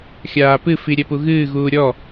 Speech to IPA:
xʲaːpɨfi ɾʲɛpuɣɨːɣuː ɾʲɔ

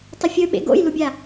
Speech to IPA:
tˤəfʲɵɓḛ ɡo̰jlubʲa

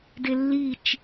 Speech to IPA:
delːit͡ʃ

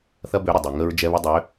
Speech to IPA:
θɐ˦bø˨˦ ɾə˨dˤy˨ ŋə˦ɹd͡ʒɛ˦βɪ˦ dˤø˨˦

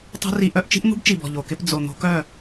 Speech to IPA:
tˤṳ˦ ri˦ ʔœ˦ʔ t͡ʃi̤˦ʔn̪ṳ˦bt͡ʃi˨bɔ̤˨ ʎo˨kɪ˦p d͡zo˨ n̪o̤˦kœ˦˨

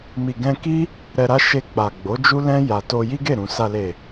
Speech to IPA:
mi˨ɡɛ̃˧ki˦ | ɾɛ˧ɾa˦ ʃe˧k͡pa˨ɡ͡bo˨˦ d͡ʒu˦lɛ̃˦ ja˧ to˧ji˦ɡe˦˨ ɾũ˨ sa˨le˨

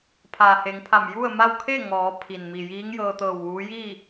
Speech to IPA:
pʰaː˩he˩˧ŋpʰa˧˩m ju˥˨ə̯ma˥˨w kʰe˥˨ ŋɔː˩˧ pʰi˩n mi˩jiː˧˥ŋjɤː˧t̪ɤː˧˩w ʋuː˧˥ ji˥˨

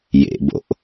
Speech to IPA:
jḛbo̰ʔ

